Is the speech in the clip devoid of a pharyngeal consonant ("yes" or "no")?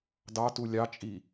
yes